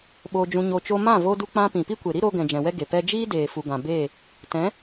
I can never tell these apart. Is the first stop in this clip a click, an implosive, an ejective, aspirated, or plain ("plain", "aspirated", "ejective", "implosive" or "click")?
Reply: implosive